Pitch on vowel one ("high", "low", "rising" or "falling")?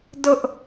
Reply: high